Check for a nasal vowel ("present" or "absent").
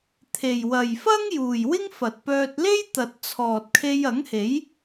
absent